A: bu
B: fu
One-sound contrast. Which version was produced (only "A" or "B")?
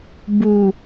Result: A